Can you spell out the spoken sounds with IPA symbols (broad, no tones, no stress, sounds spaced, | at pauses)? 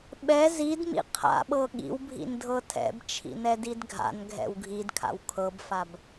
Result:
ɓ ɛ z i d m ḭ qʰ a̰ ɓ ɤ ɠ ḭ w bʱ ḭ n dʱ ɤ tʰ ɛ̰ b t͡ʃʰ ḭ n ɛ d i d ɡʱ a̰ n ɡʱ ɛ̰ w ɡʱ i d kʰ a̰ w kʰ ɤ b f a b